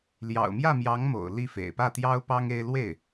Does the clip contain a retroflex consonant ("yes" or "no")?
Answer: no